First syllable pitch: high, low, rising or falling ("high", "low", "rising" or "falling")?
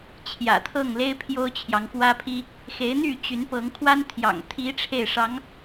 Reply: low